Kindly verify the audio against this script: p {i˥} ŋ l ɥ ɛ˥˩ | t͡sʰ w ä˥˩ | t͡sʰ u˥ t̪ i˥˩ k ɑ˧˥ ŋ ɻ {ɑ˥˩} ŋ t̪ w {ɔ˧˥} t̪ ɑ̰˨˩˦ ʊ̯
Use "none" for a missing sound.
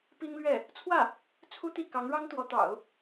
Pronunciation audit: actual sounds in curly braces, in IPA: i˥, ɑ˥, ɔ˧˥

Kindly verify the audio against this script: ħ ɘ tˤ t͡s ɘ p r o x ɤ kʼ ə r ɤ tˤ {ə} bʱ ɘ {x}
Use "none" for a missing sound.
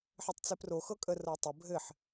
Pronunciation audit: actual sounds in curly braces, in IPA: ə, ħ

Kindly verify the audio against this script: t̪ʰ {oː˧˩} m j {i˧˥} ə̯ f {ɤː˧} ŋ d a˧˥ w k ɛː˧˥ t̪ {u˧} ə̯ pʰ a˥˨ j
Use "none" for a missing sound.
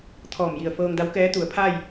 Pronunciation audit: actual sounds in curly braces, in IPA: ɔː˧˩, i˧˩, ɤː˧, u˩˧

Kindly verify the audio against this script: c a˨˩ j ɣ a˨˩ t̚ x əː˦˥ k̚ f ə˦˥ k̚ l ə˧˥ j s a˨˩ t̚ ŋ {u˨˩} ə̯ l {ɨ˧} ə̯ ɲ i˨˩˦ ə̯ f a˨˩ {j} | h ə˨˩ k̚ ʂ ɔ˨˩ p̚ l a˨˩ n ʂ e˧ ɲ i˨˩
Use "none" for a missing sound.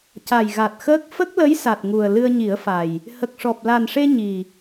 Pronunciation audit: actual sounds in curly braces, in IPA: u˨˩, ɨ˧, j

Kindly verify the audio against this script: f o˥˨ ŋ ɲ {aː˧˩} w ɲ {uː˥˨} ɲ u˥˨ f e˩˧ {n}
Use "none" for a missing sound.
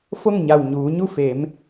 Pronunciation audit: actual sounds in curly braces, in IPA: a˧˩, uː˩˧, m

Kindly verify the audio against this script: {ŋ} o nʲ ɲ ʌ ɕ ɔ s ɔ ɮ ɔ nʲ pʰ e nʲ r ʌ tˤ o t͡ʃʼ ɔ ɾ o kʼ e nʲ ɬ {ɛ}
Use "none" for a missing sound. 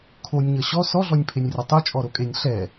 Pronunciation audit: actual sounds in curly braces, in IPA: kʰ, ɛ

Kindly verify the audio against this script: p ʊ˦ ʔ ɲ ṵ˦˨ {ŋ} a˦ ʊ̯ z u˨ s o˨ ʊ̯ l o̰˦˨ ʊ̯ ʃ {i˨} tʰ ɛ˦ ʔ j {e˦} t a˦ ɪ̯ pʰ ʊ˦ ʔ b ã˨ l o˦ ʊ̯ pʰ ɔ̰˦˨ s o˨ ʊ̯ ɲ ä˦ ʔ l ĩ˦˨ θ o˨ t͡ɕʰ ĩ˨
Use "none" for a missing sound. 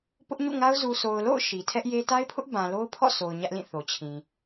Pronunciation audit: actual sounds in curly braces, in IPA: ŋ, i˨, e˦

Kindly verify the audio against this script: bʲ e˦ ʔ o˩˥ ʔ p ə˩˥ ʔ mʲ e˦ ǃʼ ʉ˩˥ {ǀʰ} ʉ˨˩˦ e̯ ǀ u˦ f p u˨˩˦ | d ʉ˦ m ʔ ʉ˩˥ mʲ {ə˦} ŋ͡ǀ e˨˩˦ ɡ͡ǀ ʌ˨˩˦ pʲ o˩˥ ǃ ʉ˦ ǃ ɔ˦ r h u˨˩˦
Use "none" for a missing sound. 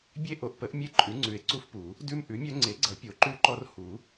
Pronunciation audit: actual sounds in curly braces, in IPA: ŋ͡ǀ, œ˦

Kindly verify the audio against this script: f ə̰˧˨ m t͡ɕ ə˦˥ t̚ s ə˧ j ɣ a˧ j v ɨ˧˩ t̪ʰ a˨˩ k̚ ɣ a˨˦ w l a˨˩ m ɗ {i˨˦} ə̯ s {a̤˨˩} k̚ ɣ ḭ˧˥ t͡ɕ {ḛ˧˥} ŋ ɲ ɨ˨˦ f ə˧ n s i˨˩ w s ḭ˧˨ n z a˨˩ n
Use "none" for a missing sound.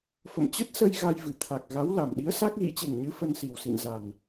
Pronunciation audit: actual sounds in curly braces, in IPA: i˨˦, a˦˥, e˨˩

